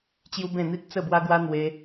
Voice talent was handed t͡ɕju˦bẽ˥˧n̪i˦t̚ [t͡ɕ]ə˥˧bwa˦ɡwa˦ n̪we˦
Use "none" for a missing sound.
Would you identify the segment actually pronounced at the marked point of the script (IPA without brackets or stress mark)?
t͡s